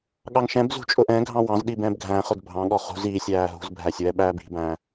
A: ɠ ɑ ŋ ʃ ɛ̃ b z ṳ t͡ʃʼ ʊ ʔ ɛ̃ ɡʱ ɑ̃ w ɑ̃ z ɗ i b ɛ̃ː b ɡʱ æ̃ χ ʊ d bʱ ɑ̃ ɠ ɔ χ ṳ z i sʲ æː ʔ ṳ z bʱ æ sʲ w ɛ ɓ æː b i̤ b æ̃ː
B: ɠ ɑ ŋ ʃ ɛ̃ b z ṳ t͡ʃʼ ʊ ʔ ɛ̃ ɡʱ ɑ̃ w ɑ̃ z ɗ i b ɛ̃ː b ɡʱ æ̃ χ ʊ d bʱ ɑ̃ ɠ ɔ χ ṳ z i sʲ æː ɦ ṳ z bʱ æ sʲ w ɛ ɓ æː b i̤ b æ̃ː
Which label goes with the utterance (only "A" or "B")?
B